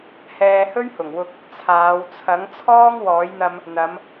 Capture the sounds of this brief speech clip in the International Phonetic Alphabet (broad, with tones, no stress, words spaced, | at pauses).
hɛː˧hɵ˥ɥhʊ˨˩ŋwʊ˧k̚ | t͡sʰaː˨˧wt͡sʰɐ˨˥ŋ t͡sʰɔː˥ŋ wɔː˨˥jn̪ɐ˧m | n̪ɐ˨˧m